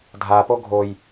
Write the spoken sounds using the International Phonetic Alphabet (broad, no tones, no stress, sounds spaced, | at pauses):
dʱ a p o ɡʱ o j